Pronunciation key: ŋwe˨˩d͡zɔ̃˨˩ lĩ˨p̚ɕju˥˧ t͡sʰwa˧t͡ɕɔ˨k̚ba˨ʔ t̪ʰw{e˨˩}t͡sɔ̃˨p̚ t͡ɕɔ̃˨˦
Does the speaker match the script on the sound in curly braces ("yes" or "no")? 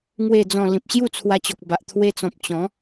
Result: no